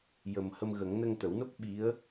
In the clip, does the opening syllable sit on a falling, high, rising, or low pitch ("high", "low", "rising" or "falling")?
low